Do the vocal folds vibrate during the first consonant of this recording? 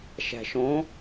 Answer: no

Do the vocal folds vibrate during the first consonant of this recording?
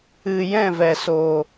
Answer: yes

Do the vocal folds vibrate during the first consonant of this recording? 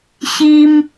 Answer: no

